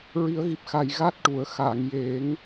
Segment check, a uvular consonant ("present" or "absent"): absent